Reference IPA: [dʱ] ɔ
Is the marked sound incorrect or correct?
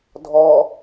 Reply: correct